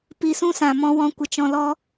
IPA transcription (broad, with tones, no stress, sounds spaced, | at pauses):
p i˧ s ũ˦ s ã˨ m ɔ̃˧ w ɔ̃˨˦ kʷ ə˨ t͡ʃ ɔ̃˧ l ɔ˦